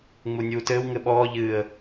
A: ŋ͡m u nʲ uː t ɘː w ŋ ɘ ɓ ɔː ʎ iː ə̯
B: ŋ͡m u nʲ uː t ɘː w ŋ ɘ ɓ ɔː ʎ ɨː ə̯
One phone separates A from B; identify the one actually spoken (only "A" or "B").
B